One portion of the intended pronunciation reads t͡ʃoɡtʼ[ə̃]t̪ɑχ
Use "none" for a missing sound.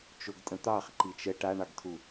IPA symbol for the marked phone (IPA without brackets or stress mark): ə̃